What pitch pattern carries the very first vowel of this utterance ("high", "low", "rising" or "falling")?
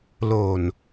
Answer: low